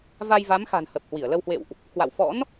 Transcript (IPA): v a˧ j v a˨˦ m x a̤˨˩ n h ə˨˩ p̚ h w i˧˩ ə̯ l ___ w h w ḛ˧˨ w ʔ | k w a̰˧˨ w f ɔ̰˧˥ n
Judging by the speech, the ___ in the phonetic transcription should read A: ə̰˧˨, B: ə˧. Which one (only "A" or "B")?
B